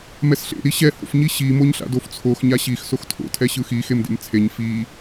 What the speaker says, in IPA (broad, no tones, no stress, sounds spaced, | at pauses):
m ɛ s ɬ ḛ ɾ i ɕ ɛ h o̰ f ɲ i ɕ i m o ɲ ɬ a̰ d o f t͡sʰ o x ɲ a ɕ i x s o x tʰ o̰ tʰ ɛ ɕ ɯ x i x e m d ḛ m t͡sʰ e ɲ f i